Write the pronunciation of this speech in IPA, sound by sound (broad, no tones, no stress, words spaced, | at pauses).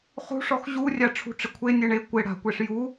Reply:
χṳʂɔx ʑurʲa ʈ͡ʂʰṳʈ͡ʂɪkʷʰe nʲeɳe kʷɪ ɽa̤kʷeʂ ju